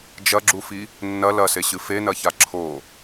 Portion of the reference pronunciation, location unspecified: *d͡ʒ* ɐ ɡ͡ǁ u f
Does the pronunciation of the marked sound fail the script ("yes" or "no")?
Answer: no